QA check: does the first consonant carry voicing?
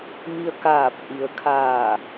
yes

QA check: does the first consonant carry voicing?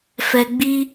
no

